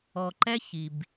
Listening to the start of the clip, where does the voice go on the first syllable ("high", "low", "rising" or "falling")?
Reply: low